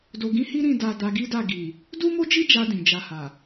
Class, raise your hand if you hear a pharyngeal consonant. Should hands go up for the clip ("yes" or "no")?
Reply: no